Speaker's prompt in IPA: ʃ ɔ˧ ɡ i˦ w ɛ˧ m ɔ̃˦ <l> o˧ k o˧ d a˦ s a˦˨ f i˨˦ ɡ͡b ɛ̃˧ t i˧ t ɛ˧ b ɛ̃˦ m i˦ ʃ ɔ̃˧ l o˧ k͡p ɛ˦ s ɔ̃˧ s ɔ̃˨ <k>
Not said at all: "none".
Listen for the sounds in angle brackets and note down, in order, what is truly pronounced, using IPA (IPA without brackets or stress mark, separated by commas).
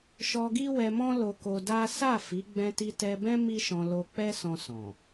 l, none